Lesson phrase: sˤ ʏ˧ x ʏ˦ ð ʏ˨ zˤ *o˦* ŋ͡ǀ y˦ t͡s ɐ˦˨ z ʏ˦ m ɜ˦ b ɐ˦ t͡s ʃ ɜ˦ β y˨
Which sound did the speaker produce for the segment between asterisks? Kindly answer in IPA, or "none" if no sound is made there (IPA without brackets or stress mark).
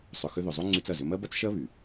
o˦